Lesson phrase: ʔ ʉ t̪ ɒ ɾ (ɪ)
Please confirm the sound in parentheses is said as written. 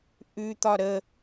no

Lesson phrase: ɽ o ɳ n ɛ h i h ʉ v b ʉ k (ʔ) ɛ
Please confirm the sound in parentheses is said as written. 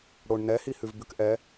yes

